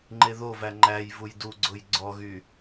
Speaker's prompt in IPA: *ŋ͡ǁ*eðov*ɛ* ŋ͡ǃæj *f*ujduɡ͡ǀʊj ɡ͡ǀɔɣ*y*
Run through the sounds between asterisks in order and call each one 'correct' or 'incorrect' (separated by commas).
incorrect, incorrect, incorrect, correct